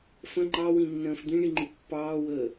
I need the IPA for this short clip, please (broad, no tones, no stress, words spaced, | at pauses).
fə̃ ŋ͡ǃɑwĩnːə̃ːf d̪ĩɳiŋ͡ǃi pːɑːwəː